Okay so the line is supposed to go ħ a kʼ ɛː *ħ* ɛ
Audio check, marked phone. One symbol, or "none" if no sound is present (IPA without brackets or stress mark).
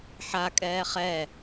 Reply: χ